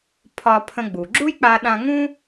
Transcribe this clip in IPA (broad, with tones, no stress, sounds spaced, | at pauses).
pʰ ɒ˧ pʰ ə̃˧ ɡ͡b u˩ ɡ͡ǁ u˥ j k͡p a˧ ɗ ã˧ ŋ ũ˥